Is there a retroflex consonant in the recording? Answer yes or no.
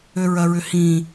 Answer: no